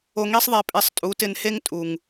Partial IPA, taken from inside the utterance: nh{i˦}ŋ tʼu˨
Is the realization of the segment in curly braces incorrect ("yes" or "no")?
yes